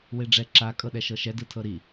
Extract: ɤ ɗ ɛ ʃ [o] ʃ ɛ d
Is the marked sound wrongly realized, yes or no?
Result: yes